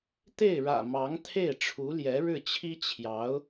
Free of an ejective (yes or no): yes